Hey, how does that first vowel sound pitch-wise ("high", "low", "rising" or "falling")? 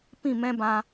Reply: falling